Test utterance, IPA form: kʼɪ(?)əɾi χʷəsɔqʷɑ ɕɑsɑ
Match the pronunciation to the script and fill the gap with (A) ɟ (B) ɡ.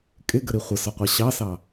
B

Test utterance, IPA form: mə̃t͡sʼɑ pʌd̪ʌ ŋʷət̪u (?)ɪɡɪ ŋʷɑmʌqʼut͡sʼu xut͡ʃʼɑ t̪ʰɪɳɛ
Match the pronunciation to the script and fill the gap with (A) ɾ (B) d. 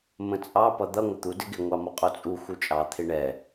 B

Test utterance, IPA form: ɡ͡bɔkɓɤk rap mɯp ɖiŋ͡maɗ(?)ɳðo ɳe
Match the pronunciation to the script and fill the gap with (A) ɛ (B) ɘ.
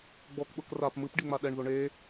A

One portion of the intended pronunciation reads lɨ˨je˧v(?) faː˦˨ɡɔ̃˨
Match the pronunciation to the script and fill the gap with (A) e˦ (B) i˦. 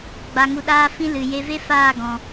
A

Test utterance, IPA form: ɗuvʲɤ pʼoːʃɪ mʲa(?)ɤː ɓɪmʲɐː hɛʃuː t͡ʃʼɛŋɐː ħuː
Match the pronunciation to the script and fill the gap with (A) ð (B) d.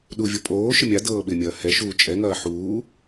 B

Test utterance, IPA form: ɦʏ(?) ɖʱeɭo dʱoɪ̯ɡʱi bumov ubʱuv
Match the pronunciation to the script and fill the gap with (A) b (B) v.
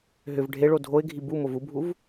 B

